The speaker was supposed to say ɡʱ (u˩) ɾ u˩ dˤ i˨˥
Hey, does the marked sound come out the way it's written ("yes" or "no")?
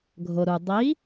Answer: no